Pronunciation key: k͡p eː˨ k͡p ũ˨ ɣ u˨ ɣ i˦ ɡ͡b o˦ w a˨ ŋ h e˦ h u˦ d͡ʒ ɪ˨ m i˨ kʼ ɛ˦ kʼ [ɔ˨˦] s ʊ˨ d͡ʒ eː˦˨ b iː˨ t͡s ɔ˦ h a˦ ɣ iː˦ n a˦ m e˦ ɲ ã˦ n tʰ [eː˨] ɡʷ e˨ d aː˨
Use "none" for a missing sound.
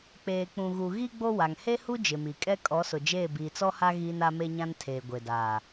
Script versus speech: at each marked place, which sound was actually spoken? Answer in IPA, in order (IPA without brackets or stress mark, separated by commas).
ɔ˨˦, eː˨